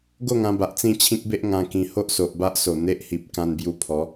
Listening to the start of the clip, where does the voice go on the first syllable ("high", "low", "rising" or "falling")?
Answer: falling